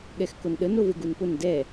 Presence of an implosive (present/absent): present